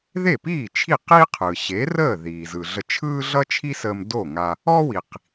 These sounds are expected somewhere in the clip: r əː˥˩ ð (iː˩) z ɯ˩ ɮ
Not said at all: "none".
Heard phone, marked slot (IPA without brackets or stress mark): iː˩